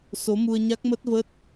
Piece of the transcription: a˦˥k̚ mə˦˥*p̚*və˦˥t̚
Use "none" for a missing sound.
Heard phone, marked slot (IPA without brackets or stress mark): t̚